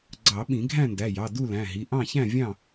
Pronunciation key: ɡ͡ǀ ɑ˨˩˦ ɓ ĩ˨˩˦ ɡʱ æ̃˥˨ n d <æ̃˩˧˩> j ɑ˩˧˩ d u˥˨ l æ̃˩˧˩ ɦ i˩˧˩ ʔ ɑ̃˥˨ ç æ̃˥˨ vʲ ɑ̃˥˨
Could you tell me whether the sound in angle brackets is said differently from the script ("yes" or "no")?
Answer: yes